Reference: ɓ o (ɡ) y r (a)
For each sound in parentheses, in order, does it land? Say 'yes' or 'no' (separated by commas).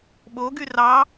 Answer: yes, no